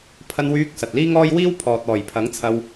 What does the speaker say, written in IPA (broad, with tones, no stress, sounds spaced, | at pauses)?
pʰ ɐ˧ n w yː˧ k̚ s ɐ˨ t̚ l iː˥ ŋ ɔː˥ j w iː˥ w pʰ ɔː˨ t̚ ɔː˨˩ j pʰ ɐ˨˥ ŋ t͡sʰ ɐ˧ w